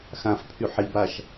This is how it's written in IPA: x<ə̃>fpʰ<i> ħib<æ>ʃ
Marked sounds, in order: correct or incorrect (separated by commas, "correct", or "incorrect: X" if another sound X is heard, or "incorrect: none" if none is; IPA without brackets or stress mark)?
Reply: incorrect: ã, incorrect: y, incorrect: a